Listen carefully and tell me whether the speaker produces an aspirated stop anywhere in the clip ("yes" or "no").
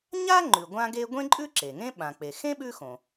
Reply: no